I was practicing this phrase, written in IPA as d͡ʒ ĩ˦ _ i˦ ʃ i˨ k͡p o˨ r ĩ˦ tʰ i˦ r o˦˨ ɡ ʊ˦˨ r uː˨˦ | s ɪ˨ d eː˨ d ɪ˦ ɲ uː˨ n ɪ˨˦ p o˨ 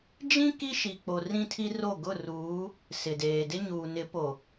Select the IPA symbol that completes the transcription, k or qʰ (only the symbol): k